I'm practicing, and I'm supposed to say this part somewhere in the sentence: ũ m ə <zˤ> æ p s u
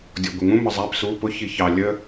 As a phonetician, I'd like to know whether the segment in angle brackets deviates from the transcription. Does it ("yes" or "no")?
no